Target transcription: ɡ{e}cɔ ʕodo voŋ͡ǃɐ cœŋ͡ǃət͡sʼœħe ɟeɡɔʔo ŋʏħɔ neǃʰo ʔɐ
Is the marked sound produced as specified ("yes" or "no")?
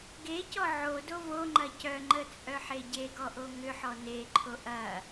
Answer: yes